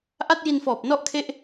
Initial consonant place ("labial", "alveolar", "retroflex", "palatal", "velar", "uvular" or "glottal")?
glottal